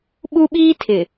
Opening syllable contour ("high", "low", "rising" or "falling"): high